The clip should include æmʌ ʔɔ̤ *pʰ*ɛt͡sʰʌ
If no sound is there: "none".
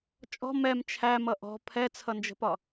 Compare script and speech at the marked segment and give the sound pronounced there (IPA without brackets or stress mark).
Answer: pʰ